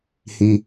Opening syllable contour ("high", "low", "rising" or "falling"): high